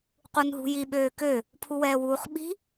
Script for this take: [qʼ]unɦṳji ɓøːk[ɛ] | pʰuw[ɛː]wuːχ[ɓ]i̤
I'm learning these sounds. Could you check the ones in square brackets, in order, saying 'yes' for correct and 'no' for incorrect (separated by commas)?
no, no, yes, yes